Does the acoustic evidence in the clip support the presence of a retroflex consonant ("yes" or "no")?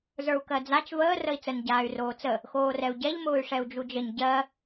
yes